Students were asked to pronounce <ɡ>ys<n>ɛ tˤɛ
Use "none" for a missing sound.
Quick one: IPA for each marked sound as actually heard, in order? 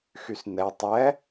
x, n

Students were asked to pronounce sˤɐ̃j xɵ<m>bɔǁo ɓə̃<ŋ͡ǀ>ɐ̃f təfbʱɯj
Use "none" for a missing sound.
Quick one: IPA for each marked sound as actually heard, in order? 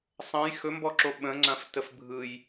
m, ŋ͡ǀ

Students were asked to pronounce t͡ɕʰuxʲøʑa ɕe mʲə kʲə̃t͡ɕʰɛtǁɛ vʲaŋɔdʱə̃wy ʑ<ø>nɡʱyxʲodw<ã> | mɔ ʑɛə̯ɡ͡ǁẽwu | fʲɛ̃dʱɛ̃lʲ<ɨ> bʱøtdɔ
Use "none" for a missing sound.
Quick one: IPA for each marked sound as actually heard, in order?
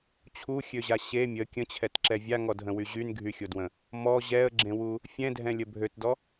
y, ə̃, ə

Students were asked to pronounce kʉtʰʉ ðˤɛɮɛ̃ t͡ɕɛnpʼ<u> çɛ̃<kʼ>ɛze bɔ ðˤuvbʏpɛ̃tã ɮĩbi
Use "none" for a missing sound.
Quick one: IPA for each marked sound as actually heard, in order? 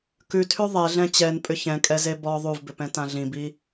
ʏ, kʼ

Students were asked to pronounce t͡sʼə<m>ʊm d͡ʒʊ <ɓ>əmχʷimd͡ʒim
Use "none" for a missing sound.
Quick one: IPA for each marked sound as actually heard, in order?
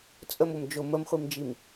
m, m

